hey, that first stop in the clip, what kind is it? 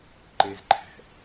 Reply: click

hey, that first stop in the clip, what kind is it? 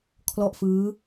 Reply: aspirated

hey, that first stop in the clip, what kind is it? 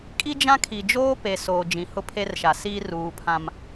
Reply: ejective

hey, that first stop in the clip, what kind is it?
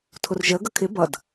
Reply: aspirated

